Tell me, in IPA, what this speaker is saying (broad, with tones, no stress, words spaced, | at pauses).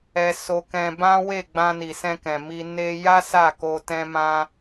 ɛ˦so˦kɛ̃˦ bã˦ we˦˨ɡ͡bã˧ni˨sɛ̃˧ kɛ̃˨mi˧ ne˧ja˦ sa˦˨ko˧tɛ̃˦mã˦